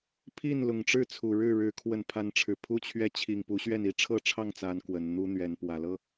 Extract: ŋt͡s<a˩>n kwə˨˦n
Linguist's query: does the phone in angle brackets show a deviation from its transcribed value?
yes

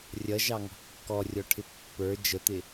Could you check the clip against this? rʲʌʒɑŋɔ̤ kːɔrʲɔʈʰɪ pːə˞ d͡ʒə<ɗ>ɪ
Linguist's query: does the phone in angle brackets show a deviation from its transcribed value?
yes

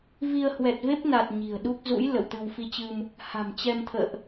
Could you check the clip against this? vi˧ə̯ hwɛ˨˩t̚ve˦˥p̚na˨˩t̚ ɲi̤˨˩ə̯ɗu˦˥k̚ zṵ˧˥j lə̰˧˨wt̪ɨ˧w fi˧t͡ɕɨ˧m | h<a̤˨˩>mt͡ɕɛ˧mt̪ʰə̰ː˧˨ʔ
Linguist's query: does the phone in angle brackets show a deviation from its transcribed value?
no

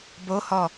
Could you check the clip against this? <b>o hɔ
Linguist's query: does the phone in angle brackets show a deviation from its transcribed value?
no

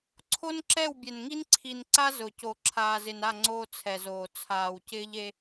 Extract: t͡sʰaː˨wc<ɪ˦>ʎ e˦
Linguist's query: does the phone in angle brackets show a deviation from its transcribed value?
yes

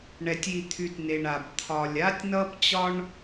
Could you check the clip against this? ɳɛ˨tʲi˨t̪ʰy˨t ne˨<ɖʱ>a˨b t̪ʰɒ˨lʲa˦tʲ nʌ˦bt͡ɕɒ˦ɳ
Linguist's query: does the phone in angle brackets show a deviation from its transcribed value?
yes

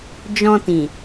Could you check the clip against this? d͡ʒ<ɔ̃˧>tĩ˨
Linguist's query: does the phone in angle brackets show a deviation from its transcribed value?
no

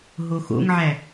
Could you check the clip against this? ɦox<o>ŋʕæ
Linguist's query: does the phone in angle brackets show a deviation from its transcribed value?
yes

